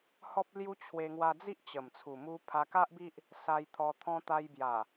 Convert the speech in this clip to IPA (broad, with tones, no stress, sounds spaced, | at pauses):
h ɔ˦ p̚ l j u˦ t͡ɕʰ w e˧ ŋ w a˧ d͡z i˦ ʔ t͡ɕ ə˨˩ m t͡sʰ u˨˩ m u˧ pʰ a˧ k a˦ ʔ b i˦ ʔ | s a˧ j t̪ʰ ɔ˧ t̪ʰ ɔ̃˧ t̪ a˧ j b j a˨˩